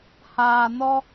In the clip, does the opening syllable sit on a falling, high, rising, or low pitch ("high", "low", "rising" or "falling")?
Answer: low